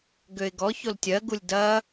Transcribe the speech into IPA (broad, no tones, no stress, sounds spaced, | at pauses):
ɡ ø ɪ̯ ɡ ɔ ç o l tʲ ɜ ɡ u lʲ d ɐ